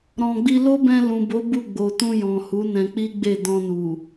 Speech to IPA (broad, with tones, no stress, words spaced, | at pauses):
ɾɔ̃˨ɡ͡bi˧ lo˦bɛ̃˧lũ˨bo˨˦ bu˦˨ɡ͡bo˨tũ˧jɔ̃˨ hu˨˦nɛ̃˧k͡pi˦ɡ͡be˦˨ dɔ̃˧nu˨